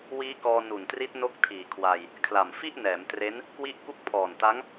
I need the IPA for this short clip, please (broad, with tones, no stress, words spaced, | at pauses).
wiː˦˥kɔː˧nu˨˩ntri˦˥t̚ no˦˥k̚tʰiː˨˩kʰwa˧j | kʰla˨˩mfi˥˩ʔnɛː˩˦mtre˦˥n | kwi˦˥ʔku˦˥k̚pʰɔː˨˩nta˦˥ŋ